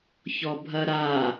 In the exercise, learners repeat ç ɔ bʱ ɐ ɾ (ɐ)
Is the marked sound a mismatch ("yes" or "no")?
yes